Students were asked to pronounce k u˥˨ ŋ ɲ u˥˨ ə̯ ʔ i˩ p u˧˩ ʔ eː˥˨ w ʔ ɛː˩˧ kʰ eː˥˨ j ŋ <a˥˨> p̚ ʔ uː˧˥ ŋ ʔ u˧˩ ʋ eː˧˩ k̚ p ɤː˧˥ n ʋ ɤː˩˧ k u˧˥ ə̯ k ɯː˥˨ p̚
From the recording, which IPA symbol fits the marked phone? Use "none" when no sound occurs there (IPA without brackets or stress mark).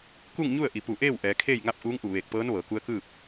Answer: a˥˨